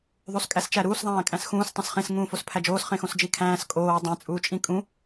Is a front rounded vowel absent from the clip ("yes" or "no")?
yes